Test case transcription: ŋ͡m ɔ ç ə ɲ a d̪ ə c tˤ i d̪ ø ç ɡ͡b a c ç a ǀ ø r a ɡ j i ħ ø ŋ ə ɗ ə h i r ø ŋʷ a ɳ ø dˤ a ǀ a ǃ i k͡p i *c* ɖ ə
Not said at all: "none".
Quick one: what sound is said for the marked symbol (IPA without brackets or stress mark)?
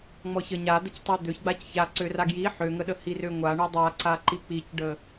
c